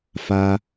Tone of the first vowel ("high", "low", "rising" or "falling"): high